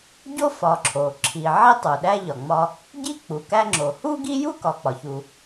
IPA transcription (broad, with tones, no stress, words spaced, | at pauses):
ɟo˥fɒ˨ǁʰo˩ ǁʰi˨ʕi˥ tˤu˩ɗæ˥ ʎɒ˩ŋ͡mɒ˦ | ɟi˥k͡pu˩kæ˦ŋ͡ǁo˩ hu˥ɡi˥ju˥ kɒ˨k͡pɒ˩çu˨